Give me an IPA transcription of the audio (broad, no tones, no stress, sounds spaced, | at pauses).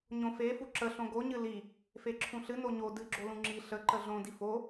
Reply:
ɲ õ f e f u ǁ ə ɬ õ ɡ o ɲ ɨ l i | f e ǁʰ ũ ɬ ɨ n o ɲ o d ɨ ɡ͡ǁ o l ũ ŋ͡ǁ i ɬ ə ǃ ə ɮ õ d i f o